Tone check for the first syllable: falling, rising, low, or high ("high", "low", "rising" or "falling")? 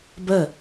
falling